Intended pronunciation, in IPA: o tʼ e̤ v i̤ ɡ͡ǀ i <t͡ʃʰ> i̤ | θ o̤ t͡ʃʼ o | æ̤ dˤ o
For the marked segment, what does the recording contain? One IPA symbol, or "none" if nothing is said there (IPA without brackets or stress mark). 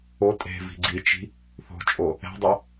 t͡ʃ